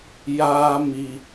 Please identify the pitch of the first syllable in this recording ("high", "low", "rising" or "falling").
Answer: high